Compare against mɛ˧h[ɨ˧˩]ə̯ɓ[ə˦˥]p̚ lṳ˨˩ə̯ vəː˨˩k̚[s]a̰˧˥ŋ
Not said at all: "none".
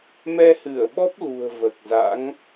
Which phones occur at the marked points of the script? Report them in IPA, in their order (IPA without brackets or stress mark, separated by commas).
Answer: ɨ˧˩, ɔ˦˥, z